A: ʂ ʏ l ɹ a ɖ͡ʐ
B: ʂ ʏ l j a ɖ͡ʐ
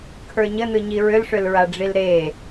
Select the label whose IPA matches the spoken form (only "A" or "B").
A